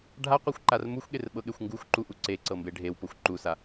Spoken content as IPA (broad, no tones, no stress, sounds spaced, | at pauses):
ɖʱ a qʷ a xʷ ǃ a r m u xʷ ɠ e r ɓ ɤ ɠ e xʷ ŋ ɡ u xʷ ǃ u ʔ u ǀ e ǀ ɤ m b e ɖʱ e w p ɤ xʷ ǃ u s a